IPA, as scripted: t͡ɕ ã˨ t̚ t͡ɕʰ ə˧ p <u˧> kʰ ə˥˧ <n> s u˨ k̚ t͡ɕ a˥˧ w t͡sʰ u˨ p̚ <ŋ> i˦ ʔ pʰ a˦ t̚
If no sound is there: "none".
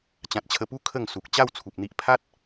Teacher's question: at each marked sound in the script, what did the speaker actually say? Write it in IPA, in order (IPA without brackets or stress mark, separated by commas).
u˦, ŋ, n̪